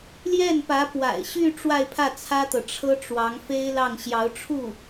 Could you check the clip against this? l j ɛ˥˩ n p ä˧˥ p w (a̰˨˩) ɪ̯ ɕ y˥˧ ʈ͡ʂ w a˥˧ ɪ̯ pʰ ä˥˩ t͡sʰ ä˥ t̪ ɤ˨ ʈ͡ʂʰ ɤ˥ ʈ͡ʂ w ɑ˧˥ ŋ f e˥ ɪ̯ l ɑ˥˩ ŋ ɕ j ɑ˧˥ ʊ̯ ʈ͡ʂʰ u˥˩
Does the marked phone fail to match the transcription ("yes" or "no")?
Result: no